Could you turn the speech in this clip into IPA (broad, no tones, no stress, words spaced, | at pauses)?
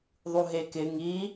ðˤuɦekɪ ŋi